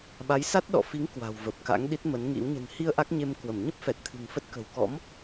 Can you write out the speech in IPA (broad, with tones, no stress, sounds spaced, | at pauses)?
ɓ a˨˦ j s a˦˥ t̚ ɗ ɔ̰˧˨ f i˨˦ ŋ k w a̤˨˩ w v ə˨˩ p̚ k a̰˧˥ ŋ ɗ i˦˥ t̚ m ə˨˦ n ŋ ḭ˧˥ w ɲ ə̤˨˩ n h i˧ ə̯ ʔ a˦˥ k̚ ɲ e˧ m k w ə˧˩ m ɲ ə˦˥ p̚ f ɛ˨˩ t̚ t̪ʰ ɨ̤˨˩ ŋ f ə˦˥ t̚ k ə̤˨˩ w k ɔ̰˧˥ m